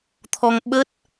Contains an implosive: yes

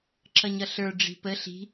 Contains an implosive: no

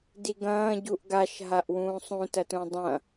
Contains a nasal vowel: yes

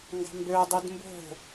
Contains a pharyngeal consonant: no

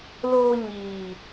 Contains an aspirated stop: no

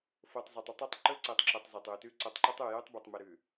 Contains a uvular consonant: no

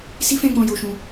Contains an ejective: no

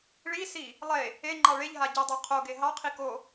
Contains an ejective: no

